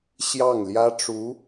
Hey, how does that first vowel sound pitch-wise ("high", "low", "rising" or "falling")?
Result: falling